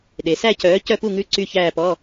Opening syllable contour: low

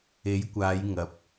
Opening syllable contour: rising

